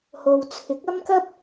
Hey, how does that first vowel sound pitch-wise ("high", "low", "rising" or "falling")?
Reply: low